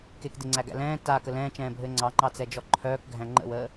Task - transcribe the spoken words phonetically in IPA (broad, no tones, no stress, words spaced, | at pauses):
kekdeŋ͡ǀæɡæ̰ lɛ̃ː taːkə lɛ̃ːt͡ʃɛ̃ːbʱɘː ŋ͡ǀɑŋ͡ǃɑt͡sɛd͡ʒɔ ǃʰœːkɡʱæ̃ ŋ͡ǃə̰wəː